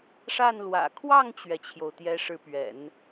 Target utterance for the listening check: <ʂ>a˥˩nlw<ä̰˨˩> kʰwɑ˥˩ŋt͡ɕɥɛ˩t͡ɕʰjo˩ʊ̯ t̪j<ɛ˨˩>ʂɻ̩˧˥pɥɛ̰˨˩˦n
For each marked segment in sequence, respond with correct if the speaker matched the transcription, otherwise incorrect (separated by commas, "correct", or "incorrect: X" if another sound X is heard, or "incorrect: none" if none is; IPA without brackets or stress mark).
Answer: correct, correct, incorrect: ɛ˧˥